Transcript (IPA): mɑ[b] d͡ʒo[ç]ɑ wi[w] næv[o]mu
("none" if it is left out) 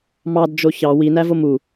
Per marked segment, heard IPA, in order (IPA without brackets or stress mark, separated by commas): d, ç, none, o